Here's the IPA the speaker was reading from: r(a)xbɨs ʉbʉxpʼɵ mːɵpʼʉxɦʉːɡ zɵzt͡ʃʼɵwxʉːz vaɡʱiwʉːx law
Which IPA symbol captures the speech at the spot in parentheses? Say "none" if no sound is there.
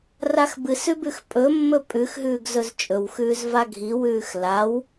a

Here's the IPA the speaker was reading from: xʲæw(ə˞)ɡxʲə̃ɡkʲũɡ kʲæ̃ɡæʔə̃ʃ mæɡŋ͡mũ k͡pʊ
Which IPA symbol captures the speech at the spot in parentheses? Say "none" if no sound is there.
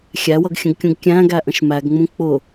ʌ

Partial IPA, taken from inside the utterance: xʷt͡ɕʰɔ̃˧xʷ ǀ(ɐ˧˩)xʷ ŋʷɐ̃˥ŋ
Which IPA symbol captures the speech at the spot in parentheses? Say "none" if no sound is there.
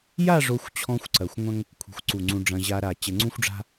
ɐ˧˩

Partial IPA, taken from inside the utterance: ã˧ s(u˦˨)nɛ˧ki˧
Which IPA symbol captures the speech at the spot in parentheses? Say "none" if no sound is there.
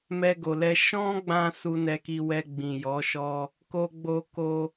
u˧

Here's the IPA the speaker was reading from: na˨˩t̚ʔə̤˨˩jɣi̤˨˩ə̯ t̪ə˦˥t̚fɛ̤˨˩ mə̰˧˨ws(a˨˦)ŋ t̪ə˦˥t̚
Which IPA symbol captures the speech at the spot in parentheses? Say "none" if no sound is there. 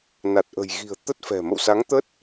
a˨˦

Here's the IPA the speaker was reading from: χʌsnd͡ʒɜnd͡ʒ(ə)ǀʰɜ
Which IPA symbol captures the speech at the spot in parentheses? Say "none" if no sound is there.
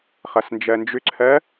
ʏ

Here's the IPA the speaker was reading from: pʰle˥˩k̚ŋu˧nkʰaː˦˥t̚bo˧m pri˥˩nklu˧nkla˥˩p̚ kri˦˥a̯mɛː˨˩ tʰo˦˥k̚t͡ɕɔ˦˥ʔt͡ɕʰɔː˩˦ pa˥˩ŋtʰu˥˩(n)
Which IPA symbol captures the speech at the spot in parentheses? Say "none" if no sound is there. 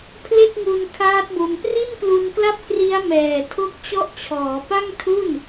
n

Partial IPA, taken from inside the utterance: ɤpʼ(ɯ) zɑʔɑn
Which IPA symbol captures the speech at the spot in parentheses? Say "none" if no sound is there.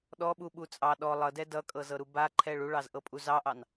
u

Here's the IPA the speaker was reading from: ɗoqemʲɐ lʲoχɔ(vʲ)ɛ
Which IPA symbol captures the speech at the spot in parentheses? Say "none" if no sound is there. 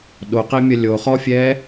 fʲ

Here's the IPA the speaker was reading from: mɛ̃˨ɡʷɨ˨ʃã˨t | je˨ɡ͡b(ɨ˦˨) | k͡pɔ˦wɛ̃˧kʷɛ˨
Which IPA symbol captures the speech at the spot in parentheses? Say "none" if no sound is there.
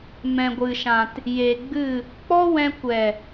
ɨ˦˨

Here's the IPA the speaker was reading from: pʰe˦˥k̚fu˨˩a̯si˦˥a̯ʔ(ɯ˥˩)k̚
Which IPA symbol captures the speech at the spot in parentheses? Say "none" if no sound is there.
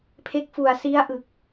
ɯ˨˩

